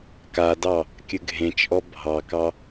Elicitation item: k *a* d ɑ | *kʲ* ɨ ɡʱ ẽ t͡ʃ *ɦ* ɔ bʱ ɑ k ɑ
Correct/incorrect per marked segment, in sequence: correct, correct, incorrect

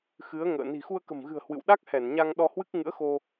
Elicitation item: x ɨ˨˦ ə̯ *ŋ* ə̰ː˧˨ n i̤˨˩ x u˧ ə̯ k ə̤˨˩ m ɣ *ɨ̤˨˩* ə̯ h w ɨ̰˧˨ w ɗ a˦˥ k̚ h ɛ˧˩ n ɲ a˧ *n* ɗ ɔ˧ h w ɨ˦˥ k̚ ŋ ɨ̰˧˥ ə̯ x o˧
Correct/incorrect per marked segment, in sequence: correct, correct, incorrect

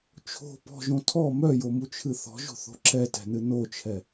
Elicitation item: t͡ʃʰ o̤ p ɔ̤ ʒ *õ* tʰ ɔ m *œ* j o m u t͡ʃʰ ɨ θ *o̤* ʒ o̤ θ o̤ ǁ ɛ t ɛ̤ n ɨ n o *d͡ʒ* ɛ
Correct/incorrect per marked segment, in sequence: correct, correct, incorrect, incorrect

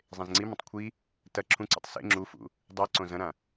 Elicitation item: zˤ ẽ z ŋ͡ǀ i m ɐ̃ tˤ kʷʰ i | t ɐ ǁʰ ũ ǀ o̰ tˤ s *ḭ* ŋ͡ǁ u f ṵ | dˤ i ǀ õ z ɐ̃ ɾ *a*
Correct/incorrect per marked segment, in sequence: incorrect, incorrect

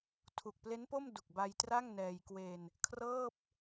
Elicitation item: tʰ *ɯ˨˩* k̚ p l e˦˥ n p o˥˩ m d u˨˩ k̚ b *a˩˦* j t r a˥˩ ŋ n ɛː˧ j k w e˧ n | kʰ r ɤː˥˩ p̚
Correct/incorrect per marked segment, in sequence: incorrect, incorrect

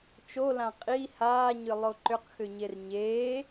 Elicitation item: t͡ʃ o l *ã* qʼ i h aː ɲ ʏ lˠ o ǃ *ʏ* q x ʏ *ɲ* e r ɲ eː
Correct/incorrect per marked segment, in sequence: correct, correct, correct

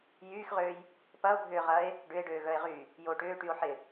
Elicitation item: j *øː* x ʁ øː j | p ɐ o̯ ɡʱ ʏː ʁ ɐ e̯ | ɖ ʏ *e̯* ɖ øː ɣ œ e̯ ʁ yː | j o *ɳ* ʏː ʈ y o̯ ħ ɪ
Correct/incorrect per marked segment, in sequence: incorrect, correct, incorrect

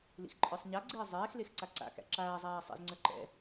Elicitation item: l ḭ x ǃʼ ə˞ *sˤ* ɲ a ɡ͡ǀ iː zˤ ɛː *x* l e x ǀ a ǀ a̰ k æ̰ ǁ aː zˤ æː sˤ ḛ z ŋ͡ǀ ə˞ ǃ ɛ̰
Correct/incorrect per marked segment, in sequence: correct, correct

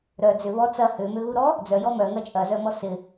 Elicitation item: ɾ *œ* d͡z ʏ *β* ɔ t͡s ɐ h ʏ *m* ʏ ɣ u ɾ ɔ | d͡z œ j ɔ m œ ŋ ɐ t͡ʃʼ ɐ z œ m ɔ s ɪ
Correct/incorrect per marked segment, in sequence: correct, correct, correct

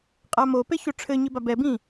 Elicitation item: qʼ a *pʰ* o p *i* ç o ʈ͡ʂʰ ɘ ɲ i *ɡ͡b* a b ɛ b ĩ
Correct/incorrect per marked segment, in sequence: incorrect, incorrect, incorrect

